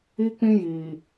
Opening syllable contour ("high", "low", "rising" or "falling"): high